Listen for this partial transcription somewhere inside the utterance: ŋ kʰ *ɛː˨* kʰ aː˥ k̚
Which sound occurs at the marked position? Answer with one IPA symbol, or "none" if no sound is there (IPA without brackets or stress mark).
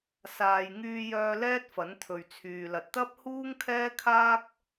ɛː˥